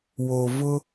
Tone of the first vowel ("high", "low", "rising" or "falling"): low